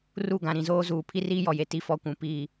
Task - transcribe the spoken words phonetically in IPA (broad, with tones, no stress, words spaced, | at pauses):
ru˦˨ɡã˨ ɾĩ˨zoː˦zuː˨ pʰi˦riː˦jɔ˨je˨ ti˦fɔ˦ kʷũ˨piː˦˨